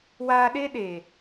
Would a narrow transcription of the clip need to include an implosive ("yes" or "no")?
yes